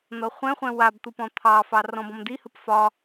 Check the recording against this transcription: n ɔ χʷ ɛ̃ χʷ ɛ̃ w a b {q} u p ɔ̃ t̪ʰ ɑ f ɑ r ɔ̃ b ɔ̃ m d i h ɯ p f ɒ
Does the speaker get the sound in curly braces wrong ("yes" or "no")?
yes